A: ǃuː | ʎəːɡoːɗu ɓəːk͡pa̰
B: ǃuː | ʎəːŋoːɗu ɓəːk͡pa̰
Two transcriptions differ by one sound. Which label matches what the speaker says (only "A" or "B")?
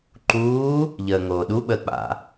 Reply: B